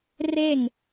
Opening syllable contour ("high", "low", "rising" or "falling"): falling